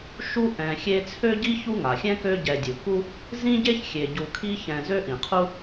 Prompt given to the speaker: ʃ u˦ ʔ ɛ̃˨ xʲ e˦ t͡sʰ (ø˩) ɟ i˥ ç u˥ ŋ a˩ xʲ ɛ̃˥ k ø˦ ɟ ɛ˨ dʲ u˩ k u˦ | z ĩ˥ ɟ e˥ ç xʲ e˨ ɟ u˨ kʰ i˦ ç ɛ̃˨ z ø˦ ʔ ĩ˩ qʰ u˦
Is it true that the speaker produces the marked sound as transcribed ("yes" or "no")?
no